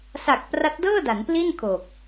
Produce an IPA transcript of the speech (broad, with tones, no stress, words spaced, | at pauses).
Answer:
sa˨˩k̚ pra˦˥t̚dɤː˥˩ da˩˦npli˥˩n kʰo˨˩k̚